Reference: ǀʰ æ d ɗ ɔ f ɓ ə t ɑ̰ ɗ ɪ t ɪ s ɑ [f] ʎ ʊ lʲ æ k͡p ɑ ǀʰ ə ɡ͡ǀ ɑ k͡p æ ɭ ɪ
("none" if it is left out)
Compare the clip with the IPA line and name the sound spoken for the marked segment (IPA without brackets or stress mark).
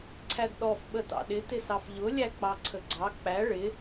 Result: f